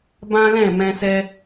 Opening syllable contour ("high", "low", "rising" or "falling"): high